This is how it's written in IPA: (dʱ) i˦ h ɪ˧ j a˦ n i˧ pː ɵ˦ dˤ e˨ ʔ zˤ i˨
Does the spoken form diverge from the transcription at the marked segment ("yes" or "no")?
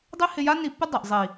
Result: yes